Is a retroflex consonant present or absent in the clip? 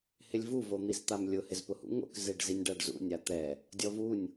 present